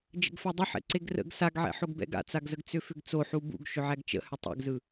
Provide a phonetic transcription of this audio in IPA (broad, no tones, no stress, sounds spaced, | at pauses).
d͡ʒ ə̰ ɡ f æ dˤ ə ħ ɛ̰ ǀ e ɡ r ə̰ ɡ s a ɡ ʕ ɛ̰ ħ o ɡ b ɛ̰ ɡ a̰ t͡s a ɡ z ə ɡ t͡s ʏ f ʏ ɡ t͡s o ħ u b ṵ ɡ ʃ ʏ ʕ æ ɡ t͡ʃ ə̰ h ʏ tˤ ɛ̰ ɡ z ɯ